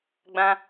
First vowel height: low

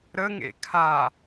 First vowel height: mid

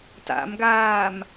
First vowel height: low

